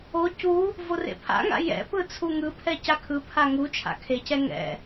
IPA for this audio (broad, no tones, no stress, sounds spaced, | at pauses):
o c u | v o r ḛ pʰ a̰ ŋ a̰ j ɛ̰ p ɯ t͡sʰ u ŋ ɯ pʰ ɛ c a kʰ ɯ pʰ a ŋ u t͡ʃʰ a̰ kʰ e c ɛ ŋ ɛ̰